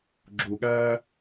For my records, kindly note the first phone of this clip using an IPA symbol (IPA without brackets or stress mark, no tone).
ɡ͡ǁ